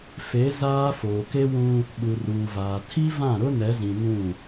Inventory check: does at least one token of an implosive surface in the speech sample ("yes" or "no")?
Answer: yes